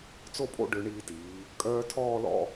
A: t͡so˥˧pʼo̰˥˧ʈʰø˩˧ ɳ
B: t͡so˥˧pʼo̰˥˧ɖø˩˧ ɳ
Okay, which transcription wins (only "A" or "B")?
B